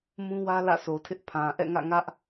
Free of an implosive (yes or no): yes